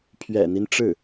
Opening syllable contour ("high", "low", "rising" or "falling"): low